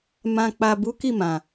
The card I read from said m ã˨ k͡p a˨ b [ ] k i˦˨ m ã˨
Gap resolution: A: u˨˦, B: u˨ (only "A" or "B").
A